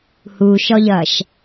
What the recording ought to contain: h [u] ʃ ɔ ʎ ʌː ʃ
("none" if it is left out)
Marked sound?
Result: u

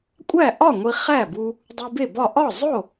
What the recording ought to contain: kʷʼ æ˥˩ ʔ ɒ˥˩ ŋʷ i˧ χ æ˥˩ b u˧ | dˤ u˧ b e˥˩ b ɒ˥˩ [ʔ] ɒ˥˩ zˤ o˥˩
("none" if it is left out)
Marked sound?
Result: ʔ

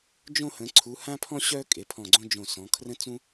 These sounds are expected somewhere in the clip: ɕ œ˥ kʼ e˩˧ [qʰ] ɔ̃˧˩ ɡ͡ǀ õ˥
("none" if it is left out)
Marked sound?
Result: pʰ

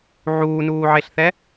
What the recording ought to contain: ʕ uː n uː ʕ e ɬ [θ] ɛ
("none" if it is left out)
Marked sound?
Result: θ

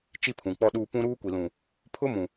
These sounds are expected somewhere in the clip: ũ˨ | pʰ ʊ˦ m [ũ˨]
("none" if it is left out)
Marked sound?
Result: ũ˨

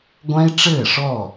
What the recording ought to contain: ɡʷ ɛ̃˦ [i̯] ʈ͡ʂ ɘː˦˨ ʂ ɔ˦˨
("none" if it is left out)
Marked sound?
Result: i̯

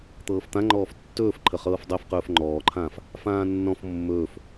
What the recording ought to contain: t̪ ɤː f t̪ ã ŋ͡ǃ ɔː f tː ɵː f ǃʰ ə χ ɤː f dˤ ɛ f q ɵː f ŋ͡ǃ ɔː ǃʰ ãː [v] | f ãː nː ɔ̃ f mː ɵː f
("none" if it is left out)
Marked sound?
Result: f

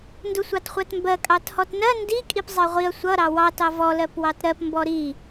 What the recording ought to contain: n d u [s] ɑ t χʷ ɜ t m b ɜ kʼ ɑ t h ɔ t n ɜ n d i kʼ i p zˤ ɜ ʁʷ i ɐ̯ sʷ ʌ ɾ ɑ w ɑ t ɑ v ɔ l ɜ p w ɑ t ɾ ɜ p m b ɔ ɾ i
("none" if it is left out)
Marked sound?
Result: sʷ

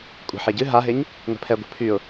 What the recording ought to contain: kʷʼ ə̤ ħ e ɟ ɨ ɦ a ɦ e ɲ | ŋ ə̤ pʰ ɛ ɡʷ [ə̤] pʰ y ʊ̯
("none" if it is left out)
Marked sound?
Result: ə̤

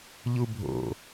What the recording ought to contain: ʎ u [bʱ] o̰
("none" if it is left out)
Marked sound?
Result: bʱ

